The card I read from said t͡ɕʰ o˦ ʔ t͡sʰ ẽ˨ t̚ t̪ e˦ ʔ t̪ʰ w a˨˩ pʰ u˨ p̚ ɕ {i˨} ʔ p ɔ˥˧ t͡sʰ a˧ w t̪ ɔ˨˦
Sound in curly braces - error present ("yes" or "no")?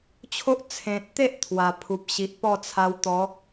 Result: no